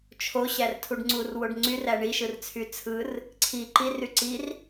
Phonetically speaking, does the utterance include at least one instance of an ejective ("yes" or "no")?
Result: no